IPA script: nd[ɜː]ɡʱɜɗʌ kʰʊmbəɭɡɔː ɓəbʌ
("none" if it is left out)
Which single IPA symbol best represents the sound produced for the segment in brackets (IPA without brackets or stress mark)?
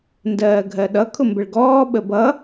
ɜː